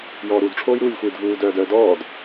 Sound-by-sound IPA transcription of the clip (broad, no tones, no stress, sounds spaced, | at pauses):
j ɔː ɾ u d ʈ͡ʂʰ oː j ɾ uː lʲ xʷ iː d v uː d œː d œː d ɔː d